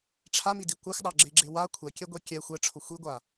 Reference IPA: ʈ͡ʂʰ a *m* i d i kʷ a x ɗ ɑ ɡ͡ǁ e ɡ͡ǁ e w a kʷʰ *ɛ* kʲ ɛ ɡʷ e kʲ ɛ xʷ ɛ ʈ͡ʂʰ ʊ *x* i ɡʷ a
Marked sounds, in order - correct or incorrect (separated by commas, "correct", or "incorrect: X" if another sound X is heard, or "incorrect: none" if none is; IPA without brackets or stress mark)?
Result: correct, correct, incorrect: xʷ